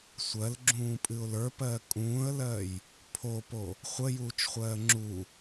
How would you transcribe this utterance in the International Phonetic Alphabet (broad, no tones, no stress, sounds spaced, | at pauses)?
sʷ ɜ l ɡ͡ǁ ũː pʼ ɨ ʊ̯ l ə˞ p ɜː kʼ ũː ə̯ l ɜ j | pʰ o p o | χʷ ə j uː t͡ʃ χʷ ɜː ŋ͡ǁ u